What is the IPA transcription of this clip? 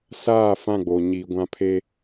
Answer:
saː˦˨fã˦˨ɡ͡bo˨ ɲi˨ ɡʷã˦pʰe˦

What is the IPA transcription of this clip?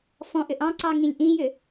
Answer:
fɔ̃ʔʏʔ ɑ̃ǀɑŋĩlʲ ʔĩjʏ

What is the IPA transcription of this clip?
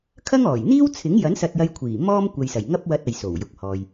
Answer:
kʰɐ˥ŋɔː˨˩j n̪iː˥wt͡sʰɪ˨˥ŋjɐ˨˥n sɐ˧t̚jɐ˧jkʷʰiː˨˩ mɔː˥mkʷɐ˨jsɐ˨˩j ŋɐ˥p̚ wɐ˧t̚ ɐ˨jso˨˩w jʊ˨k̚hɔː˨j

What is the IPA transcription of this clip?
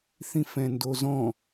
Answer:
θĩfɛ̃ndozɔ̃

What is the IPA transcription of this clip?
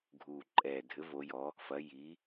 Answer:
ɡʱu˨˩ǃʼɛ˨˩ dʱɘ˩˥vo˩˧jɔ˩˧ | fɐ˩˧ji˩˧

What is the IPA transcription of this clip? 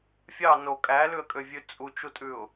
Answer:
fʲɑ no kʼælʉə̯kʼøvʲʉ t͡sʼut͡ʃutʼʉʊ̯

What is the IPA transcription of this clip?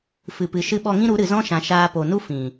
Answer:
fɨ˨pɨ˨ ʃɨ˧ɓɔ˧ŋĩ˦ɾu˨˦ ɾɨ˨zɔ̃˦ʃã˨ ʃaː˧po˨nu˦ fĩ˨

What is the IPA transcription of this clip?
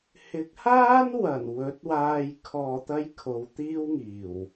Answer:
hɪ˨˥k̚haː˥nwɐ˨˩n wɵ˨˥t̚waː˧j kʰɔː˨t̪ɐ˧j kʰo˨˧wt̪iː˥wŋiː˨˩w

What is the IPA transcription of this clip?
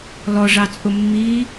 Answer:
lɔʐɑt͡sʼʊ mːi

